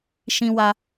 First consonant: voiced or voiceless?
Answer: voiceless